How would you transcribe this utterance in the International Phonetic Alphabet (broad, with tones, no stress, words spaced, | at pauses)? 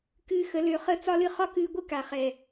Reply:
kɨː˧xə˨˦lø˧χə˦ t͡sɒ˦lɨ˧ χɒ˦kɨː˧ɡʷɨ˦ ka˨χɛ˨